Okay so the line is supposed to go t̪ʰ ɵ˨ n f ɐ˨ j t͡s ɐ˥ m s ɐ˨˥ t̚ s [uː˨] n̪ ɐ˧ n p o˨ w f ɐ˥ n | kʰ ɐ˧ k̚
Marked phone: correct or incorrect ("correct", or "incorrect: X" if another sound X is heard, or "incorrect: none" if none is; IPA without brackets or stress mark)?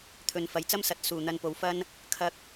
correct